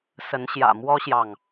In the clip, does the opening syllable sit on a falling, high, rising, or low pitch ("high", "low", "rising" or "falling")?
rising